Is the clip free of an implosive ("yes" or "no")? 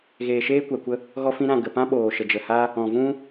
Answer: no